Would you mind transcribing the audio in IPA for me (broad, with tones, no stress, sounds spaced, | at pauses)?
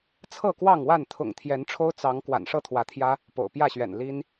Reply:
t͡sʰ ɤ˥˨ k w ɑ˥˨ ŋ w a˥˨ n t̪ʰ ʊ̰˨˩ ŋ t̪ʰ j ɛ˨˦ n ʈ͡ʂʰ o˦ ʊ̯ t͡s ɑ˨˦ ŋ k w a̰˨˩ n ʂ ɤ˥˨ t̪ʰ w ä˨˦ t̪ʰ j ä˦ | p o̰˨˩ ʊ̯ p j ä˥˨ ɕ ɥ ɛ̰˨˩ n l i˦ n